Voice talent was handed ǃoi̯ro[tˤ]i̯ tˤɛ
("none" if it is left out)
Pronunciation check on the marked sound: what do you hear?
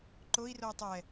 none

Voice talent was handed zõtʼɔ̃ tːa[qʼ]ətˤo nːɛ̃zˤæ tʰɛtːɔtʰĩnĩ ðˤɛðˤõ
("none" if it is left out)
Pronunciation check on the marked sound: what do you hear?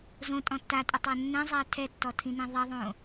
tʼ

